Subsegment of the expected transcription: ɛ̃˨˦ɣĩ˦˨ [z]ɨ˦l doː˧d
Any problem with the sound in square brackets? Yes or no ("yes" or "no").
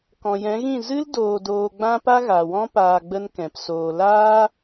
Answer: no